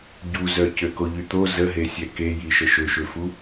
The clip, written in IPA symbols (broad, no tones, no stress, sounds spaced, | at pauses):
ɟ u z œ c ø k o ʎ y t̪ o z ə ɦ e sʲ ɛ k e j i ʃ ə ʃ ø ʃ ø f u